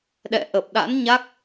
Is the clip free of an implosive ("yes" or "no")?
no